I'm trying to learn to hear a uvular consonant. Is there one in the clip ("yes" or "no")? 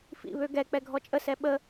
no